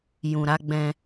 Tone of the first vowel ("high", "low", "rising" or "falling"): low